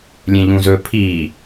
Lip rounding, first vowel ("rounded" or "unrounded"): unrounded